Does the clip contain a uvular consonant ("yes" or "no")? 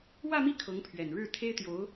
no